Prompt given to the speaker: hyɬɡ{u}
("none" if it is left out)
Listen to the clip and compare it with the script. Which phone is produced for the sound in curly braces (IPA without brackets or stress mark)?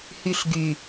y